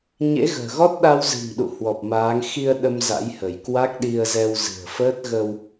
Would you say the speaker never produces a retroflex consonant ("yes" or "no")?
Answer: yes